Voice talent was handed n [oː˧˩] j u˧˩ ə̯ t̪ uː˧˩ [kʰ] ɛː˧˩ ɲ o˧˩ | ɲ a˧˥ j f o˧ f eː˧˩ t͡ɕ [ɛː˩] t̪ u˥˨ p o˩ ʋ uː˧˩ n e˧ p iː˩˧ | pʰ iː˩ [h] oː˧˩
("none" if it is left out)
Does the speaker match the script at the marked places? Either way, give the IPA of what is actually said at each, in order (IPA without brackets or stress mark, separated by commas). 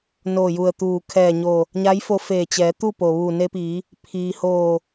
oː˧˩, kʰ, ɛː˩˧, h